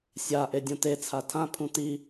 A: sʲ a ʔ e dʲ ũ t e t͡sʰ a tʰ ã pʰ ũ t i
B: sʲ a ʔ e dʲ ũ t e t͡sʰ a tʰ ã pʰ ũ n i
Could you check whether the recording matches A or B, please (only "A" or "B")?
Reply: A